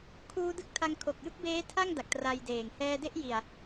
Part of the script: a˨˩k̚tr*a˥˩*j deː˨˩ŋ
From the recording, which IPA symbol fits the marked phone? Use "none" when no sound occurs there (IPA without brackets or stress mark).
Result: a˧